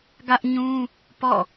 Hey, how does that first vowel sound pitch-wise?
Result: high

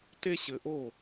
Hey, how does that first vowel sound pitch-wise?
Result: high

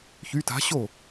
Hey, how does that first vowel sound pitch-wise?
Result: rising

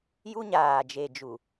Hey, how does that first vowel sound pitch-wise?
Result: high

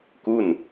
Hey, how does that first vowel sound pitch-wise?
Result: falling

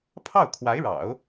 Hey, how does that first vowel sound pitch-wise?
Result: falling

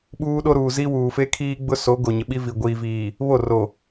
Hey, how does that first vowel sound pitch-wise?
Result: high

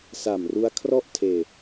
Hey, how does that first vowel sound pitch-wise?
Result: low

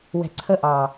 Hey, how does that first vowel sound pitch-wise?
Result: low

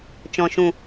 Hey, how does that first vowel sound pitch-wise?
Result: low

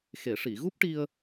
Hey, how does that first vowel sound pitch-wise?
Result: low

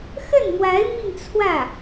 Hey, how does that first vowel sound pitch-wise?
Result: falling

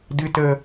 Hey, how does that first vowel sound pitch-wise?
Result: high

